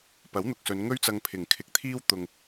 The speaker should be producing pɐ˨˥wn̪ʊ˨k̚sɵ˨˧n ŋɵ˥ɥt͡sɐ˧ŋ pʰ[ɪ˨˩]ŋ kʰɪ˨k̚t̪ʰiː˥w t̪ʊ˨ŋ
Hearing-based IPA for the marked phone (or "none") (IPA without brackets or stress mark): ɪ˨˩